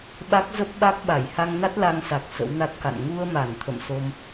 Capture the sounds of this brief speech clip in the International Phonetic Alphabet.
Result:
ɓ a˦˥ k̚ z ə˦˥ p̚ ɓ a˦˥ k̚ ɓ a˧˩ j h a˧ ŋ n a˦˥ t̚ l a˧ ŋ s a˨˩ k̚ s ə̰˧˥ w n a˦˥ t̚ k a̰˧˨ n ŋ u˧ ə̯ m a˧˩ n t̪ʰ ə̰˧˨ m s o˧ m

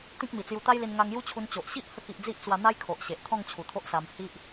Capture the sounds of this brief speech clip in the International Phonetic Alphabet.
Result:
t̪ ĩ˦ k̚ m i˨˩ t͡s j u˧ t̪ a˦ j l i˧ n ŋ a˧ ŋ j u˦ t͡ɕʰ u˧ n t͡ɕ o˨ ʔ ɕ i˦ ʔ h ə˧ k i˨ ʔ d͡z i˦ ʔ t͡s w a˧ n̪ a˦ j kʰ o˨ ʔ ɕ e˨ ʔ t̪ʰ ɔ̃˥˧ ŋ t͡ɕʰ u˨˩ t̪ʰ o˦ ʔ s a˧ m h i˦ ʔ

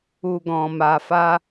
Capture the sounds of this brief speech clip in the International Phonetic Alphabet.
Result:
u˧ ɡ ɔ̃˧ m a˧ f a˦

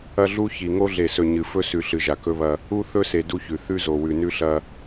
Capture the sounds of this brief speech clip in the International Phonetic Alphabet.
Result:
ɐ˦ ɮ u˦ ç i˨ ŋ o˦ ɮ e˨ s ɵ˨ ɲ ɨ˨ f ɵ˦ s ʉ˨ ɬ ɨ˨ ʒ a˨ k ɵ˦ β ɐ˦ | u˦ θ ɵ˦ s e˨ d u˦ ç ʉ˨ θ ʉ˦ z o˨ w ʉ˨ n ʉ˦ ɬ ɐ˦

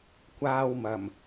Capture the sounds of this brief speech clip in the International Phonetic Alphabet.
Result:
kʷ aː˧ w m ɐ˨˩ m

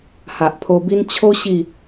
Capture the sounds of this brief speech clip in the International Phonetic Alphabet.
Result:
h a˨ ʔ pʰ o˧ b i˦ n t͡ɕʰ o˦ ɕ i˥˧

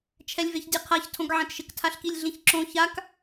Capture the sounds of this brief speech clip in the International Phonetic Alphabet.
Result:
t͡ʃʰ ɛ lʲ v e ç dʲ ɛ qʰ a ç tʰ õ ɡ ʕ ɛ̃ t ʃ ɪ k tʰ a ɬ k i lʲ ɮ ĩ ç ǁ õ ç a k

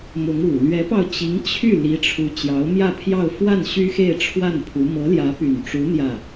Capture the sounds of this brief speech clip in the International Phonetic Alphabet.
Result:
m ʊ˧˥ ŋ u˨˩ l ɥ ɛ˧˥ p ɑ˧ ʊ̯ t͡ɕ i˧˥ ŋ t͡ɕʰ y˥˩ l i˧˥ ʈ͡ʂʰ u˧˥ t͡ɕ j ɑ˧˥ ʊ̯ m j ä˥˧ pʰ j ɑ˥˧ ʊ̯ f w a˥˩ n ɕ y˥ x e˥˧ ɪ̯ ʈ͡ʂʰ w a˥˩ n pʰ u˧˥ m ɤ˧˥ l j ä˧˥ p y˨˩ n ʈ͡ʂ u˧˥ n̪ j ä˥˩

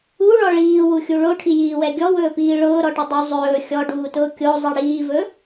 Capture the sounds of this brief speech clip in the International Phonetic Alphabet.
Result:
u ɭ ɔ ɭ iː w u xʲ u ɭ o ʈʰ i j iː w ɛ ɡʲ ɔ w ɵː p iː ɭ ʊː ɾ ɔ ʈ ʊ dˤ ʊ zˤ ɵː xʲ ɔ ɖ uː t ʊː kʲ o zˤ i ɽ iː v ɵ

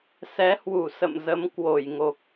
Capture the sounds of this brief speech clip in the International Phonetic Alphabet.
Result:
s ɛ˨˦ h w u˧˩ s ə̰˧˨ m z ə˨˦ m k w o˧˩ j ŋ o˨˩ k̚

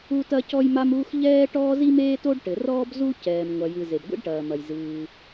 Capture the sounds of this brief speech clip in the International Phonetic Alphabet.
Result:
u˥ t ɐ˥ c ɔ˥ j m a˥ m uː˥ x ʎ ɛː˥ ʈ ɔː˥ z i˥ m eː˥ t o˥ ɖ ʈ ɘ˩ r ɔː˥ b z u˥ c ɛː˩ m ŋʷ ɐ˩ j ɨ˩ z e˩ b ɡʷ ḭ˥ ɖ ʈ ɐː˩ m ɐ˩ j z ɨː˩

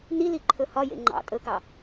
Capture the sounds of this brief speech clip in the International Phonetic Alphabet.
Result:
n i l i ǃʰ ɵ h ɒ j ḛ ŋ͡ǃ ɑ̰ tʼ ɵ k ɑ

